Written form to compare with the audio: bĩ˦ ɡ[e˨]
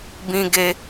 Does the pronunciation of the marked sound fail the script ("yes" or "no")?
yes